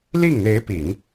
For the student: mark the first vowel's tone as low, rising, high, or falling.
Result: falling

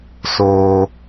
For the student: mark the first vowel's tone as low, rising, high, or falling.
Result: high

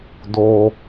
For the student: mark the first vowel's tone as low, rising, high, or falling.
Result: high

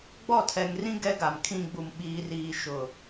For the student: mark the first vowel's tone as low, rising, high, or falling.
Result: falling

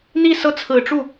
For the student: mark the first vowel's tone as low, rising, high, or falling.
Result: falling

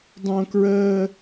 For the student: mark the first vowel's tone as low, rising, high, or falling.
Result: high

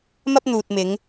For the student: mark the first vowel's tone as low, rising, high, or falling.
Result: high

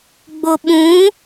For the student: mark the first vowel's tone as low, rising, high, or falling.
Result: low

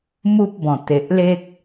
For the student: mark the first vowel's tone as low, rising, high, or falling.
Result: high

